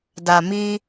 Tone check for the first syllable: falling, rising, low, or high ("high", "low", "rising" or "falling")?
low